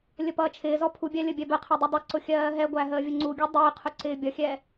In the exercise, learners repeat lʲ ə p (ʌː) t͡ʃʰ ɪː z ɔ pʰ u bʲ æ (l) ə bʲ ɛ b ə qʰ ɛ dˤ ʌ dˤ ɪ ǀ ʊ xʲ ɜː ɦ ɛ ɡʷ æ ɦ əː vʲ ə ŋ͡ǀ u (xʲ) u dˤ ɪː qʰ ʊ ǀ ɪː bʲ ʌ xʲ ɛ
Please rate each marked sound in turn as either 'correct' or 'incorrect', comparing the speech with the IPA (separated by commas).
correct, incorrect, incorrect